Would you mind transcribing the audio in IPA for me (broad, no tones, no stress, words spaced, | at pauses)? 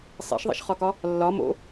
sˤḛʃðˤḛʃχɒkɒ | lːɒ mo̰